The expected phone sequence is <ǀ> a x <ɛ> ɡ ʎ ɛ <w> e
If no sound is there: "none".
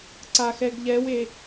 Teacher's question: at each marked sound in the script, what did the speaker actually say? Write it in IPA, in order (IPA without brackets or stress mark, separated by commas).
ǀ, ɛ, w